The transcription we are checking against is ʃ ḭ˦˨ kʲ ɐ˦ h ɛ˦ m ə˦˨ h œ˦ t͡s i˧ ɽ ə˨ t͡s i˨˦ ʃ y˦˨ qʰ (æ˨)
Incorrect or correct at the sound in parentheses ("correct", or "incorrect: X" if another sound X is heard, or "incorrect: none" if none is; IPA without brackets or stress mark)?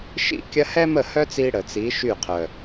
incorrect: œ˨